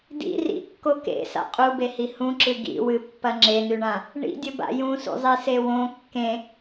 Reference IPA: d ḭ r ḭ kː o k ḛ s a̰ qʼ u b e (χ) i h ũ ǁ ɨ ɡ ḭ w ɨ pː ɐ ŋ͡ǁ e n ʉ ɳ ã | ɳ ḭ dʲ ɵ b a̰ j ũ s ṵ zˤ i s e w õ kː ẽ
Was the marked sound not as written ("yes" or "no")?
yes